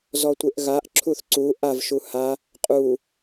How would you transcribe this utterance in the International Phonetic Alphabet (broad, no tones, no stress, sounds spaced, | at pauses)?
z ɔ tʷ e ʔ ɣ a ʔ ǁʰ u θ ǀ u ʔ a v ʃ u h a | qʼ u